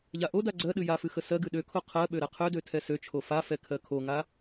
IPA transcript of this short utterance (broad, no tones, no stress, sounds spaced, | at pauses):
ʎ a ʔ o d a ɡ͡ǀ ɜ ɗ ɨ j a f ɨ x ə s ɜ ɡ ɨ ɗ ø kʰ o qʰ ɜ ɓ ø ɾ ɛ qʰ ø d ø tʰ ɛ s ø t͡ʃʰ o f a f ɛ kʰ ɜ kʰ o ŋ a